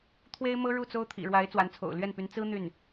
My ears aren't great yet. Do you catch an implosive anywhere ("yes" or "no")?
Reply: no